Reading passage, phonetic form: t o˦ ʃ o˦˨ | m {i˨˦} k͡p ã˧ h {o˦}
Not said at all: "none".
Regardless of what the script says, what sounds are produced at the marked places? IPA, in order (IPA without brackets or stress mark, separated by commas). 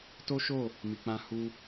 i˨, u˦